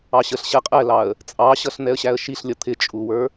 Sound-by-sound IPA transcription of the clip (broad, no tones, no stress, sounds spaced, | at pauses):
ɑ ɕ ə ɬ ɕ ɛ qʼ ɛ l ɑ ə̯ | t͡sʼ ɑ ɕ ʌ ɬ n̪ ɛ ə̯ ɕ æ ə̯ ʃ i ɬ lʲ ʌ t̪ʰ ɪ t͡ʃʼ u w ə˞